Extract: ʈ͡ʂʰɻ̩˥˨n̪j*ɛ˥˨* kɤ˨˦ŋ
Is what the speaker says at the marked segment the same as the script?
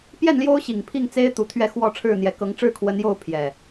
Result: no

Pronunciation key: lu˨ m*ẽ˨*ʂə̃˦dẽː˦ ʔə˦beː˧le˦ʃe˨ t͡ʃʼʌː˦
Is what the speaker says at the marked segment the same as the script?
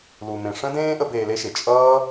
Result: yes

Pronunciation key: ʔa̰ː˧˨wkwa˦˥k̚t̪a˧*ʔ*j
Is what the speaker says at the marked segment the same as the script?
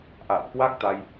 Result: no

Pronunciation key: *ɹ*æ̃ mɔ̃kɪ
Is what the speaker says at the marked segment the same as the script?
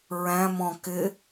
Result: yes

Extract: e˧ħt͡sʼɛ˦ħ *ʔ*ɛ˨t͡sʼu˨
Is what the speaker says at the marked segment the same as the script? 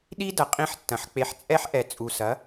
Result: yes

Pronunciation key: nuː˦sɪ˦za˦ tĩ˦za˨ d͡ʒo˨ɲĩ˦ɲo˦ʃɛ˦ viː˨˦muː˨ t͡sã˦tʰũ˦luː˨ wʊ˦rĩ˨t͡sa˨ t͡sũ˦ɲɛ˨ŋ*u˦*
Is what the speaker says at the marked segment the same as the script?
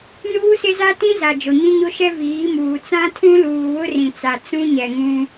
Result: no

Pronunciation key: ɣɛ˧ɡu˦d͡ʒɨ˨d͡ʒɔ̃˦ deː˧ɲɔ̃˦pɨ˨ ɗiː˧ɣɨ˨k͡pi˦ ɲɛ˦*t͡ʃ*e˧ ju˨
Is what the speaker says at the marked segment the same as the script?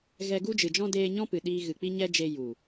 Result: no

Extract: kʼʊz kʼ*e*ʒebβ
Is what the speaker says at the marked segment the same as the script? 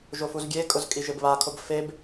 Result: no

